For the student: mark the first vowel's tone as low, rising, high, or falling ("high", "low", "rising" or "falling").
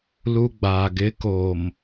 high